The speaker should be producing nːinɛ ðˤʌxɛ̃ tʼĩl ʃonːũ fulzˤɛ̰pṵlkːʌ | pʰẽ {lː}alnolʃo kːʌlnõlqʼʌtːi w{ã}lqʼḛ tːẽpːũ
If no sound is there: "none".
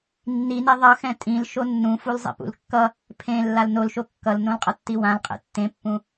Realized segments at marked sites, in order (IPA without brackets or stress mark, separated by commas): lː, ã